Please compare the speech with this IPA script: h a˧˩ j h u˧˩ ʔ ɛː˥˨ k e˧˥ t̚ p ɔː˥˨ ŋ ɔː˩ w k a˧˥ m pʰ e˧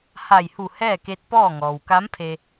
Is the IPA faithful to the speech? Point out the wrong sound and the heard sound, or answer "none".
ʔ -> h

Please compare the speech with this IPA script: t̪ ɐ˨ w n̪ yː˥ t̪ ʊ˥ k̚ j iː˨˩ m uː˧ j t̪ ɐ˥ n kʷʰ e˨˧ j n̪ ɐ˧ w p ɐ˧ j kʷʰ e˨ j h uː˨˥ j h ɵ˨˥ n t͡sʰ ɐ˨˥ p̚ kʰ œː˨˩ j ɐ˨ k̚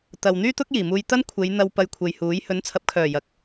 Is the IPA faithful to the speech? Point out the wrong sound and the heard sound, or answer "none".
none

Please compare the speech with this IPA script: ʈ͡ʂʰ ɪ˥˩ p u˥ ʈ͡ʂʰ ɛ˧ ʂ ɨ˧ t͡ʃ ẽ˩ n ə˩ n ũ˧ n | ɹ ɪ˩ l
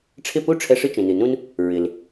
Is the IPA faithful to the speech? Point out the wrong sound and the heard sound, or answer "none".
ə˩ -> ɨ˩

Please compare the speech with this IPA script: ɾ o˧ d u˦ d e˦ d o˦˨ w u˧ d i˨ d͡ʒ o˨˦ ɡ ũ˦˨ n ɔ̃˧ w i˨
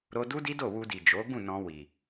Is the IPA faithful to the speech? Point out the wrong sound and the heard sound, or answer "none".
e˦ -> i˦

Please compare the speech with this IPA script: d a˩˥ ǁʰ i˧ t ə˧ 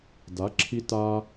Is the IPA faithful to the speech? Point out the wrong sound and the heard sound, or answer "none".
ə˧ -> a˧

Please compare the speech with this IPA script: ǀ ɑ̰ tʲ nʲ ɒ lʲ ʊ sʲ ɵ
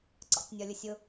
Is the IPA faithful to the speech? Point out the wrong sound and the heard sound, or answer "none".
ɵ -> ʊ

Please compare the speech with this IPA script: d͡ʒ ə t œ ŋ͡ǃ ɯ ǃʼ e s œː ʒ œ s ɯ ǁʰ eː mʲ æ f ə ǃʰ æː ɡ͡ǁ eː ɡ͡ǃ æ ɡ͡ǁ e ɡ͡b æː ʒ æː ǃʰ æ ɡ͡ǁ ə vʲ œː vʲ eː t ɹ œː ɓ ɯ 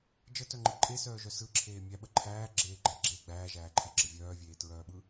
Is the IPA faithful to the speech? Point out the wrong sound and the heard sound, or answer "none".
f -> ɓ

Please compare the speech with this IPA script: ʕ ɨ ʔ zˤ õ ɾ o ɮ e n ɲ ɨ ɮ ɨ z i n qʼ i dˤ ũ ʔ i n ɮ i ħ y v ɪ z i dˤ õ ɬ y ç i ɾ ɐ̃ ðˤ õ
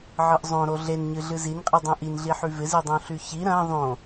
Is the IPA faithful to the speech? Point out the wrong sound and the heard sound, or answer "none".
none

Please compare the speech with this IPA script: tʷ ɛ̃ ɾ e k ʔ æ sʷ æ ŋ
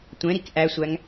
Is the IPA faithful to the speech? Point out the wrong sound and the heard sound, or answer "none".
e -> i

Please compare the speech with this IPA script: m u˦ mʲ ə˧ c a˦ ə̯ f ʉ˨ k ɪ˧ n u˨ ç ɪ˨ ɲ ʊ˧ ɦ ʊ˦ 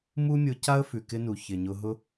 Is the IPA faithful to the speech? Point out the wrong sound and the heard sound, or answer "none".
ə˧ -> ʊ˧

